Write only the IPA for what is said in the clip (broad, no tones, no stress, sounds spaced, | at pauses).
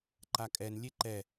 ǃ a kʼ ɛ n lʲ e ǃ ɛ